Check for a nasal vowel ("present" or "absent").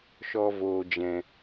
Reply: present